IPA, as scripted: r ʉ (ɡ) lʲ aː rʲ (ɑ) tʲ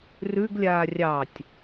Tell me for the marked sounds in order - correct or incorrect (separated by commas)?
correct, correct